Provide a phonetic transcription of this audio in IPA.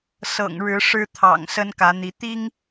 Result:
s ɤ̰˨˩ ŋ ɻ ɻ̩˨˦ ʂ ɻ̩˦ t̪ʰ ɑ̰˨˩ ŋ s ə˦ n k ä˨˦ n̪ i˨˦ t̪ i˦ ŋ

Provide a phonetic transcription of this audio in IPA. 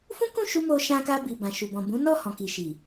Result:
f ũ˦ k ũ˦˨ ʃ u˧ m o˧ ʃ ã˧ k a˧ b i˨ b ã˨ ʃ u˨ b ɔ̃˨ b ũ˨˦ n ɔ˦˨ h ɔ̃˨ k i˨ ʃ i˨

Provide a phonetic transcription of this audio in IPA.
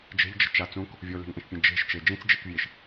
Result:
d͡ʒ e̤ ʎ d͡ʒ ə̤ t͡ʃ a t͡s ũ k | vʲ o l e̤ ŋ ʔ ẽ ʃ pʲ ẽ d͡ʒ e̤ ʃ t͡ʃ e d͡ʒ ĩ t͡s d͡ʒ e k vʲ e ʃ

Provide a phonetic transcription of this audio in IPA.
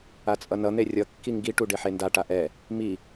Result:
a t͡sʼ ʌ n ʌ n̪ e rʲ ʌ kː i ŋ ɡ i ʈ u ɖ e ħ e n d a ʈ a ʔ ɛ | m i

